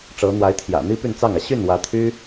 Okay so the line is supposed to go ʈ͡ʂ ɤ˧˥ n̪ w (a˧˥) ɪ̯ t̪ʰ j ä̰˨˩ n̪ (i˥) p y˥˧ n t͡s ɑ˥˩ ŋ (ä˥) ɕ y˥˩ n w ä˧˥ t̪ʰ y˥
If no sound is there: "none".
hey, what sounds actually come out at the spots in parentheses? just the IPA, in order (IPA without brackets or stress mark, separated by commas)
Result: a˧˥, i˥, ä˩